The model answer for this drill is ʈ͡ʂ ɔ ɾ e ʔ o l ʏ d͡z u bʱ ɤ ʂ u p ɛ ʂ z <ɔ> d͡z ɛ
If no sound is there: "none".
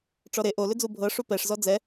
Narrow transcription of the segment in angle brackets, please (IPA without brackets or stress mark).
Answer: ɔ